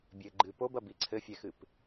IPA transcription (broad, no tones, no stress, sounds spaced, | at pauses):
bʲ ɘ ɡ͡ǃ ɨ p o b ɐ b i ǀʰ ɘ fʲ ɛ x ɨ p